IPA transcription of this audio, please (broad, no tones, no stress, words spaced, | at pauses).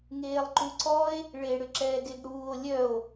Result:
ŋeːlˠǃuǀɔe̯ | ɭeɽʏ ǁɛːɡeɡɽuːo̯ lʲœo̯